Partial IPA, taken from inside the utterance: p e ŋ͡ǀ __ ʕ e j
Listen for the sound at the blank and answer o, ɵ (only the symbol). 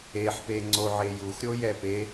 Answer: o